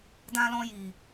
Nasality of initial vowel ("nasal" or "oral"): nasal